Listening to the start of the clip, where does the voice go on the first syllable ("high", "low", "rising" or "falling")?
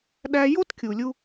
high